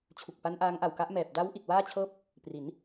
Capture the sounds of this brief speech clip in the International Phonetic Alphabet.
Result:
t͡ɕʰ u˨˩ k̚ p a˦˥ n ʔ aː˦˥ ŋ ʔ a˨˩ w k a˦˥ ʔ m ɛː˨˩ p̚ d a˦˥ w ʔ i˨˩ t̚ w aː˥˩ t͡ɕʰ ɤː˥˩ p̚ | p r i˩˦ n

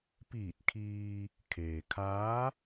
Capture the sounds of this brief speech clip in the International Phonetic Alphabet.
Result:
p iː˧˩ t̚ kʰ iː˧ | kʰ eː˩ kʰ aː˧˥

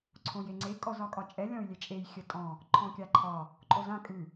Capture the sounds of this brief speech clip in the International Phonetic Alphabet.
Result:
ǀʰ õ j e ŋ͡ǀ e kʼ ɔ z ɒ kʼ ɒ t͡ʃʼ ɛ lʲ ɔ̃ y̯ lʲ e t͡ʃʼ e j xʲ ə tʼ ɔ̃ | ǃʰ ɔ̃ kʲ a ǃʰ ɒ | ǃʼ o z ã kʼ ʉ

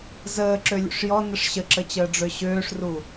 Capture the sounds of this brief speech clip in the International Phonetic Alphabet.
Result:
z əː ǁ ø lʲ ṵ ʂ j ɔ n ə ʂ ɕ ə ǁ ə t͡ɕ əː ɖ͡ʐ ø ɕ øː ʂ r u

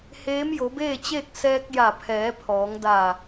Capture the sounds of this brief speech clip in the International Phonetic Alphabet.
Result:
h eː˧˥ m j o˩˧ b eː˥˨ t͡ɕ eː˥˨ k̚ s ɛː˧ k̚ j a˧˩ pʰ ɛː˩˧ pʰ ɔː˩˧ ŋ d a˧˩

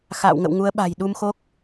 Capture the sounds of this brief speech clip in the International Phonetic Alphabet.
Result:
x a̰ː˧˨ w ŋ ə̰˧˨ w ŋ u˨˦ ə̯ ɓ a̤˨˩ j ɗ u˧ m x o˦˥ k̚

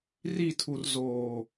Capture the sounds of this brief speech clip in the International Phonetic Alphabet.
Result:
r i˦˨ tʰ u˨ r z oː˨

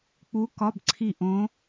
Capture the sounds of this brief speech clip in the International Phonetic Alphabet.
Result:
k͡p u˧˥ k ɒ˧˥˧ b ǀʰ i˦˨ ʔ õ˧˥

